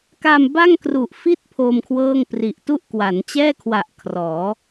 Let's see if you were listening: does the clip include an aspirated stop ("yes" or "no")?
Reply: yes